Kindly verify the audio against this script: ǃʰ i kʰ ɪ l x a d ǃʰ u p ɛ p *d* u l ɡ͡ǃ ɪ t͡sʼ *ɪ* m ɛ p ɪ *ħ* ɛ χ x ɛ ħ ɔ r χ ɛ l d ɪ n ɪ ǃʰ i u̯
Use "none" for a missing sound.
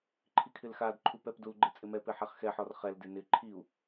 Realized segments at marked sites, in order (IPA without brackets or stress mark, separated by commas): d, ɪ, ħ